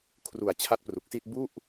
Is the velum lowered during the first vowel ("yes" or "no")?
no